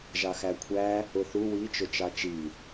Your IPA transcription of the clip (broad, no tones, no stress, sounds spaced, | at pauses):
ʒ ɑ x æ kʷʰ æ | ʊ θ u w i t͡ʃ ʊ t͡ʃ ɑ t͡ʃ i